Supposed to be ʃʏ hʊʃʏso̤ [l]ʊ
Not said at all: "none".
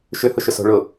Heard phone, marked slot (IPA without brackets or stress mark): ɭ